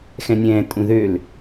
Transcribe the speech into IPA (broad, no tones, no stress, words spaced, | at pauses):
xɛ̃nʲɛ̃ː tʼũðøl